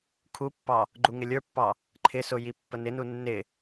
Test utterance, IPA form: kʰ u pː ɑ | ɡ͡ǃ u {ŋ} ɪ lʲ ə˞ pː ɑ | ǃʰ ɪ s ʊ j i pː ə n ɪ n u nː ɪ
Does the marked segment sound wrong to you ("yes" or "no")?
no